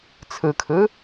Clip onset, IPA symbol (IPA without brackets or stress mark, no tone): t͡sʰ